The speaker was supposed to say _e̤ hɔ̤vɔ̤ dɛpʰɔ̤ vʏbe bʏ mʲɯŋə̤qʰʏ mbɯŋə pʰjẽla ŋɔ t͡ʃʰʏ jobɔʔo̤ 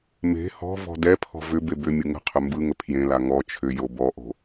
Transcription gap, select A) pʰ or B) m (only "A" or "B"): B